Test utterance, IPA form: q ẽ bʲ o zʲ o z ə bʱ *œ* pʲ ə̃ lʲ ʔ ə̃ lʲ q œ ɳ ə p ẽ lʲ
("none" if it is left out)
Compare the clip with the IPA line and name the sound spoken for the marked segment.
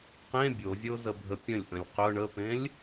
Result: ə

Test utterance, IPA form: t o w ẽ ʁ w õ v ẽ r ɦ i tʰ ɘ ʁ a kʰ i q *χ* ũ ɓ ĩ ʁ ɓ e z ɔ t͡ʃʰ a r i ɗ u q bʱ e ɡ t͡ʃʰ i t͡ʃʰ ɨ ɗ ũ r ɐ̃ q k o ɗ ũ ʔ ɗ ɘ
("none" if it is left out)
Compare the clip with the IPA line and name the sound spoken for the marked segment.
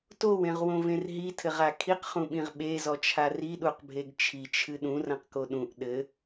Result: χ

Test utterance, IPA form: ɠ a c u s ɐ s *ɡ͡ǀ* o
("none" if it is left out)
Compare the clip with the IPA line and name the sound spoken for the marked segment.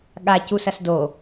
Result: d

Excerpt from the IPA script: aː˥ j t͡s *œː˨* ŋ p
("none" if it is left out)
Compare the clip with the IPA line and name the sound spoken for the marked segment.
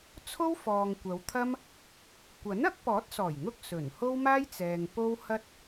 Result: ɛː˨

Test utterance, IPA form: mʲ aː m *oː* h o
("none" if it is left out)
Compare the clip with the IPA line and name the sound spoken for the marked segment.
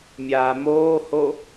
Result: oː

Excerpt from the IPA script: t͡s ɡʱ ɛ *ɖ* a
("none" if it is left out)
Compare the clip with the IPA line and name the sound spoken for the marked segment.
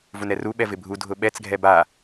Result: b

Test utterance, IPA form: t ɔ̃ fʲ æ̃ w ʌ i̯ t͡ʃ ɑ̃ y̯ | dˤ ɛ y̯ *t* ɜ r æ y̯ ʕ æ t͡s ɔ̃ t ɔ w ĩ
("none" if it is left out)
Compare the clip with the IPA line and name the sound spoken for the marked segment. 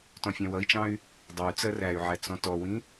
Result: t͡s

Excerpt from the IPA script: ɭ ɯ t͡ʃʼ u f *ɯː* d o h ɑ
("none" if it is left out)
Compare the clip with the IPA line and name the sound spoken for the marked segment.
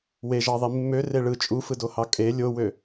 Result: ɯ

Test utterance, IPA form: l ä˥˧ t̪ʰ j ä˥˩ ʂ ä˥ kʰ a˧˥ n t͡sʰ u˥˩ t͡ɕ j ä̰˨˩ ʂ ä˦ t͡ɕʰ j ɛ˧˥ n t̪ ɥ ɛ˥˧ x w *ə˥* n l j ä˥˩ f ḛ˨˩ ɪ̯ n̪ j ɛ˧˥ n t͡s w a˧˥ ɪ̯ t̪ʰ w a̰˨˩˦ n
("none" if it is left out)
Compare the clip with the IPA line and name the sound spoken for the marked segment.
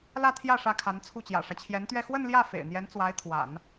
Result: ə˥˧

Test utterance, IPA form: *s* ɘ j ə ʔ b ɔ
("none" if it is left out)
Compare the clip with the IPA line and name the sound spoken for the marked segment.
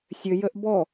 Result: sʲ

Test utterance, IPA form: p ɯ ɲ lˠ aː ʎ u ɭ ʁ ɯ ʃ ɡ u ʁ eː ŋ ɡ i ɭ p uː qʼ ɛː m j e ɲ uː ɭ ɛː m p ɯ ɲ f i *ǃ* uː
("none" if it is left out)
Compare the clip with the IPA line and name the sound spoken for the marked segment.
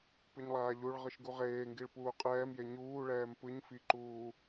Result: ǃ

